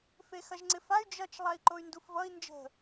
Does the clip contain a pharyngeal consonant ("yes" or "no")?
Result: no